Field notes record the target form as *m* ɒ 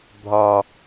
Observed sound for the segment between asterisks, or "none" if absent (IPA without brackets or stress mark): bʱ